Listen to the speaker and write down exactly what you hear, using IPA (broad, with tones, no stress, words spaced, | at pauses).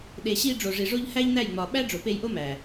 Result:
ɗe˨ɕi˧ ɖ͡ʐo˨ʐi˨ʐo˧ʎ hæ˦ʎnæ˦˨jŋ͡mɒ˨ ɓæ˦ɖ͡ʐo˨pe˧jʔo˦ mæ˨